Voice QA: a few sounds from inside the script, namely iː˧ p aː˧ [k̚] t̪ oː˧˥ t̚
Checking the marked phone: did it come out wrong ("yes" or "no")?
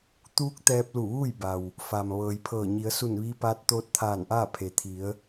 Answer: yes